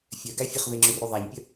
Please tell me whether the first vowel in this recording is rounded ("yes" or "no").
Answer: yes